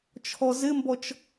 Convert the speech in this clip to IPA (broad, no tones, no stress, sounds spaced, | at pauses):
t͡ʃʰ ɔ z ɪ m b ɔ t͡ʃ